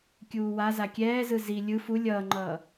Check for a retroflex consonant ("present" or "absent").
absent